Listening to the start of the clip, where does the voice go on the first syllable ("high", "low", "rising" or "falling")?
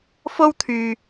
high